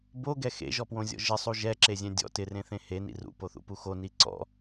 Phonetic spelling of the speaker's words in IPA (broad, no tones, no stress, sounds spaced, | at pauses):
b o ɡ ɛ x ḛ ʒ ɔ p w õ zʲ ɔ̰ ʒ ɪ sˤ u ʒ ɛ ǁ e zʲ ɛ̃ dʲ ɔ̰ t ɪ r ẽ θ ẽ h e n ḭ r ṵ p o θ ṵ p u x o n i ǀ ɔ̰